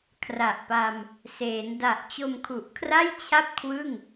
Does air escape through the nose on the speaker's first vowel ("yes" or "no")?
no